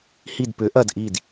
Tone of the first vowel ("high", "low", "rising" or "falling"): falling